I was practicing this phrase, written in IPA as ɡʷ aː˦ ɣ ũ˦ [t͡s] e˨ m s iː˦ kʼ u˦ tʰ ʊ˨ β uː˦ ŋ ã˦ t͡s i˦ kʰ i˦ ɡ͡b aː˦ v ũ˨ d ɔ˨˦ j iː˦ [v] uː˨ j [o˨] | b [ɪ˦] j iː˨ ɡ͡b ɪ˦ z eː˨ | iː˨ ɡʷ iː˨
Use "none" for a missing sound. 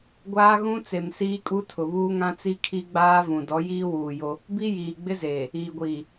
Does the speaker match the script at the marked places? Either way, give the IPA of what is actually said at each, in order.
t͡s, w, o˦, i˦

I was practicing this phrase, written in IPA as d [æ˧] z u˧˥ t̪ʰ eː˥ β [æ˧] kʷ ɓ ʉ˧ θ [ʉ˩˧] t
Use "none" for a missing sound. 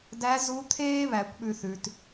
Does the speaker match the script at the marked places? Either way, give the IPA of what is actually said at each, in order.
æ˧˥, æ˩˧, ʉ˩˧

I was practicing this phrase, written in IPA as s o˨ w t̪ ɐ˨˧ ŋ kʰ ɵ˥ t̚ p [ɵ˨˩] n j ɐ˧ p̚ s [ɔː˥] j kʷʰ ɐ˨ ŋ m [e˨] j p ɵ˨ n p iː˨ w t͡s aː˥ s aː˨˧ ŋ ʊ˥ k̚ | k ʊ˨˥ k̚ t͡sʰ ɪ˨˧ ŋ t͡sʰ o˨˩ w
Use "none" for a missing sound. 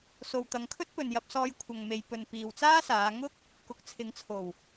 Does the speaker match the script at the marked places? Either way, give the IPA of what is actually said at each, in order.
ɵ˨, ɔː˧, e˨

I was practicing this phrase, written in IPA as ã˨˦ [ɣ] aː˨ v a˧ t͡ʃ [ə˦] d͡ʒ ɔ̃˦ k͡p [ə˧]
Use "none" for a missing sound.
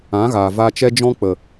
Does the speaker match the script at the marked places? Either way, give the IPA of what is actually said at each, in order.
ɣ, ɛ˦, ə˨

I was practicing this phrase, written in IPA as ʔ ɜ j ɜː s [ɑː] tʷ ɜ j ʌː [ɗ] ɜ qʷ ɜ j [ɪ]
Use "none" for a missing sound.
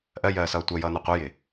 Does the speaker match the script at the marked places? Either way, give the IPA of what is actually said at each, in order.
ʌː, n, ɪ

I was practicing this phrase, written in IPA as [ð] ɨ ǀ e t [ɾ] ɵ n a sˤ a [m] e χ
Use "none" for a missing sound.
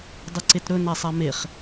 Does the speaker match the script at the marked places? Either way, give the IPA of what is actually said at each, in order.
dˤ, ɾ, m

